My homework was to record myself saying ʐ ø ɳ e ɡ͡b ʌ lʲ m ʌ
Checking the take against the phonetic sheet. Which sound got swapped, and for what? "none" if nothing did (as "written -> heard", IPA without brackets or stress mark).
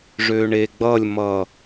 none